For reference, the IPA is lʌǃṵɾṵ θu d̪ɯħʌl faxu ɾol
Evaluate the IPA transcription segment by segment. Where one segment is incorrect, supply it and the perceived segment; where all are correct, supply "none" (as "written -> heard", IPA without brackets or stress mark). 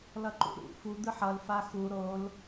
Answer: θ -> f